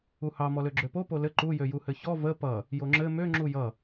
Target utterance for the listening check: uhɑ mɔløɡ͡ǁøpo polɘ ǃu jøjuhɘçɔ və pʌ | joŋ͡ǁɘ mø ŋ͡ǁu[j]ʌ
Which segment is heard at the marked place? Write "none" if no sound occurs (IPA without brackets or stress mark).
j